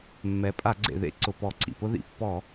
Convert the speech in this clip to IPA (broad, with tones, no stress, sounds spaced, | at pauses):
mː ɛ˩˧ pʼ a˧˩˧ ɡ͡ǀ ḛ˩ ð ḛ˥ ǀ ʊ˩ p ɔ˧˩˧ ǀ ḭ˩ p ʊ˥ ð ḭ˩˧ pː ɔ˧˩˧